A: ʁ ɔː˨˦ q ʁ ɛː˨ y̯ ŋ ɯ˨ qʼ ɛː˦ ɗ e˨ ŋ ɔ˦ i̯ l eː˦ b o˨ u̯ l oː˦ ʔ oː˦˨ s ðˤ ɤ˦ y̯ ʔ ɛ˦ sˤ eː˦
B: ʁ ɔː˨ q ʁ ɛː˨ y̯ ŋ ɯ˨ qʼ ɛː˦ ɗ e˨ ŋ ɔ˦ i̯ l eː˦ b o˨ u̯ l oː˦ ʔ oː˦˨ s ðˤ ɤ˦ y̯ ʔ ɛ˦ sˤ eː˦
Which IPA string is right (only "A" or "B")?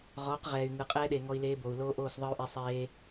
A